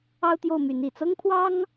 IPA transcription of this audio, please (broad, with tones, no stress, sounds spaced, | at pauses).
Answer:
ɑ˥ ʊ̯ t̪ j o˥˩ ʊ̯ m y˧˥ n i˨˩ t͡s ɤ˥ ŋ pʰ w ɑ˥ ŋ